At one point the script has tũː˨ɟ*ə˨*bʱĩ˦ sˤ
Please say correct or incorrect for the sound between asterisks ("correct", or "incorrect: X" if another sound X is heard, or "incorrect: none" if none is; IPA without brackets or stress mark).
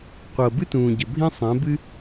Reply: correct